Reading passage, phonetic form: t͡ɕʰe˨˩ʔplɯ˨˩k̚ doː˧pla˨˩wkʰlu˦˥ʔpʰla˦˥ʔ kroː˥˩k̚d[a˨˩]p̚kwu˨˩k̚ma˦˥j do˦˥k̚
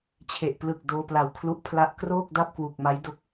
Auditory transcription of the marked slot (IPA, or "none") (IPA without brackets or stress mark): a˥˩